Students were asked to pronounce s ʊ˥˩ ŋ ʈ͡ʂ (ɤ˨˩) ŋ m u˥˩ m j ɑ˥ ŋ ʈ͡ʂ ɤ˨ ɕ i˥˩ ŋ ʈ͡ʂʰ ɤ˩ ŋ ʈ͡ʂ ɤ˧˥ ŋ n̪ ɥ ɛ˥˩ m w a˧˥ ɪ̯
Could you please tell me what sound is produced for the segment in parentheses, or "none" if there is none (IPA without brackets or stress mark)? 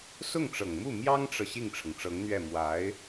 ɤ˨˩